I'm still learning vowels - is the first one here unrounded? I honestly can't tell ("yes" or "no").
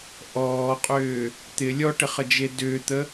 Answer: no